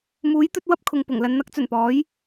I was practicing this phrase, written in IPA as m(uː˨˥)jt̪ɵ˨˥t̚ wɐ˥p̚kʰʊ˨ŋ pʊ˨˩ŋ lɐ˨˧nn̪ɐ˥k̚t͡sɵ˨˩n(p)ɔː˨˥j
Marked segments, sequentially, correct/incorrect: correct, correct

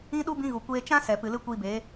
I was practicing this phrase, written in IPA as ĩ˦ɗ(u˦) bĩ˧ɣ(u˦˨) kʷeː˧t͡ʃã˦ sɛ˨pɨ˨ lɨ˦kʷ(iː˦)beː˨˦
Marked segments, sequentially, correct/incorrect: correct, incorrect, incorrect

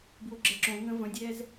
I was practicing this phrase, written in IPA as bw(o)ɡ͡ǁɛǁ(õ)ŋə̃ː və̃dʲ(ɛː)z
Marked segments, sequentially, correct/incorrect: correct, correct, correct

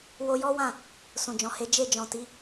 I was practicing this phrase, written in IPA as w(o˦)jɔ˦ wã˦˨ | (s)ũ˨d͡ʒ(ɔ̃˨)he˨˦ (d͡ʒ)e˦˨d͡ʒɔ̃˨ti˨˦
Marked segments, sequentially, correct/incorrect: incorrect, correct, correct, correct

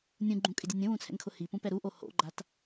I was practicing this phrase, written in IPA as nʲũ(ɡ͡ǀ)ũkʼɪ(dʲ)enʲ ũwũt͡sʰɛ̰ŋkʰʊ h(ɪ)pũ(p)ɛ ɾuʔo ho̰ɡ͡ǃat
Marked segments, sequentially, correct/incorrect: incorrect, correct, incorrect, correct

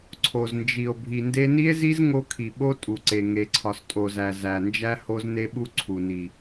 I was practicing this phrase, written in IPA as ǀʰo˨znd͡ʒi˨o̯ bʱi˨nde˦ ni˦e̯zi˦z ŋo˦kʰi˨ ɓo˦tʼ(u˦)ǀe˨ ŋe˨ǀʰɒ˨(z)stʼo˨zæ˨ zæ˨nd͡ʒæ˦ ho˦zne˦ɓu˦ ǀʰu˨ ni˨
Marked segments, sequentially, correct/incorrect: incorrect, incorrect

